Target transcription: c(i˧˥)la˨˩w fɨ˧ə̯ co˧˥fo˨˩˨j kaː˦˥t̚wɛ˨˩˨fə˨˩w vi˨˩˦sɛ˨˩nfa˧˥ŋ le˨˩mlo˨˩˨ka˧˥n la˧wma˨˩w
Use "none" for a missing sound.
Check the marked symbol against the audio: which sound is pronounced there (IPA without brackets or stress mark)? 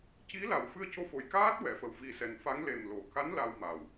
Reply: i˧˥